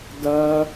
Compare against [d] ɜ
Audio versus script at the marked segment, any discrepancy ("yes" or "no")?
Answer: no